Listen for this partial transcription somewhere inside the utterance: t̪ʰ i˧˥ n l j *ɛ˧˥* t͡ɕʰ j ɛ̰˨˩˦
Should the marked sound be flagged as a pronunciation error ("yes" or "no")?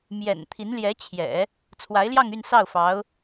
no